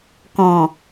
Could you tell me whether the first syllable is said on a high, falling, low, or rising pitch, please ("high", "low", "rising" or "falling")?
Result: low